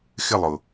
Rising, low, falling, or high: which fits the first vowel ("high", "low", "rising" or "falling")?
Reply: falling